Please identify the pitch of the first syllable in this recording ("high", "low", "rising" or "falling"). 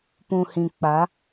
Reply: low